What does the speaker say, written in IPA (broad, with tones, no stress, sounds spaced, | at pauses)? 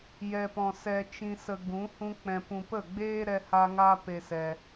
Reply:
j ɛ˨ p ɔ̃˨ s ɛ˧ t͡ʃ ĩ˧ s ə˧ ɡ ũ˨˦ h ũ˦ k͡p ɛ̃˧ p ũ˧ p ə˦˨ ɡ͡b eː˦ ɾ ɛ˦ h a˦ ŋ a˦ p e˧ s ɛ˧